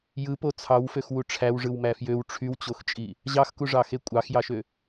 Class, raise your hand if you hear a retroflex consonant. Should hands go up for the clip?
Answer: yes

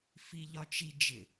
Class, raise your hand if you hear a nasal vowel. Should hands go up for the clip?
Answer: no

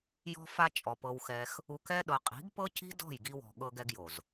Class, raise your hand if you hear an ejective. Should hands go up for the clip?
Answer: yes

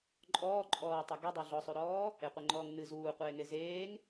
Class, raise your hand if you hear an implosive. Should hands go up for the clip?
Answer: no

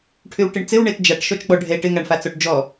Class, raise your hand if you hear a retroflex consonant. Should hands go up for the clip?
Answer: yes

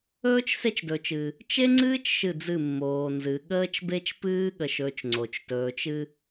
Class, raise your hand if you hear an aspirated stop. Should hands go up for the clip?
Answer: no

